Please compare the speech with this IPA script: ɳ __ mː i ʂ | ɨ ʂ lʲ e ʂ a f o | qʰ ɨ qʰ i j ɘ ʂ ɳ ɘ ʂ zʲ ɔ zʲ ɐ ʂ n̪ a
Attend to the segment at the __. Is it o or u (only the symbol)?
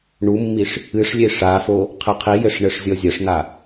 u